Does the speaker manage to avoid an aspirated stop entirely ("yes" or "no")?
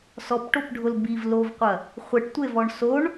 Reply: yes